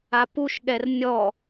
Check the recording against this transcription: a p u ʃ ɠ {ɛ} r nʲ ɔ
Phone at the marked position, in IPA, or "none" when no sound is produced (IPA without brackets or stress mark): ɛ